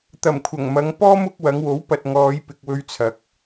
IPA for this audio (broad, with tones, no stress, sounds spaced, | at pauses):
t̪ ɐ˨˩ m kʷʰ ɐ˨˩ ŋ m ɐ˨˧ ŋ p ɔː˥ m ʊ˨˥ k̚ w ɐ˨˧ ŋ w o˨˥ w p ɐ˨ t̚ ŋ ɔː˨˧ j p ɪ˨ k̚ w ɵ˧ ɥ t͡sʰ ɐ˨ k̚